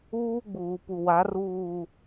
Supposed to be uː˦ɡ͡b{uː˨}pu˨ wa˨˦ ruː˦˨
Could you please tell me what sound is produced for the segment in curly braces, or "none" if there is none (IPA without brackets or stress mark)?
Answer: uː˨